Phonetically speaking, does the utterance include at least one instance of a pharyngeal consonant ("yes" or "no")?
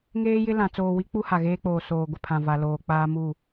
no